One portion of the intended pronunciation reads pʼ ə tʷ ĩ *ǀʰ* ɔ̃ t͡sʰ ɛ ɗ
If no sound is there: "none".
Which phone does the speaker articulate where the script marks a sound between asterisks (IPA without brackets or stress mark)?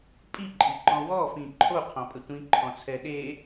ǃʰ